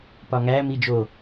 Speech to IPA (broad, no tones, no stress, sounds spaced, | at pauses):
p ɒ ŋ æ m i d͡ʒ o